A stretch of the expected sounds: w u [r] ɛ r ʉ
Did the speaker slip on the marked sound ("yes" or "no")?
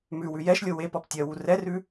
no